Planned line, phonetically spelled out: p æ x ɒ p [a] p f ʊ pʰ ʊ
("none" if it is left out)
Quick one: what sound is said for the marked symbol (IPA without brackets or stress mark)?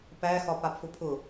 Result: a